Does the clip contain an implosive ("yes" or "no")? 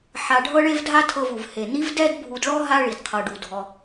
no